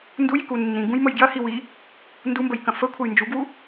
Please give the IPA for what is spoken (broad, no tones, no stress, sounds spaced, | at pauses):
n d u j i k u nː ĩ ɡ ũ j m ə j ɡ j ɐ h i w i | n d u m b ə j k ɐ̃ f ə kʷʰ ɐ j n d͡ʒ u ɡ w u